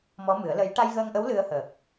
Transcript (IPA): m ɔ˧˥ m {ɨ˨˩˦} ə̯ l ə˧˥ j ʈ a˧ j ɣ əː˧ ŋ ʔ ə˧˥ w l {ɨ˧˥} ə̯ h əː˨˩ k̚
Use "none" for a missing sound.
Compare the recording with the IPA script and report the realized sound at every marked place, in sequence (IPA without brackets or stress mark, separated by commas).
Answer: ɨ˨˩˦, ɨ˧